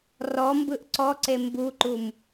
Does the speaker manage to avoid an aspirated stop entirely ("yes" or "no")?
yes